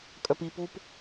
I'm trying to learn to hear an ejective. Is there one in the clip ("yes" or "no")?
yes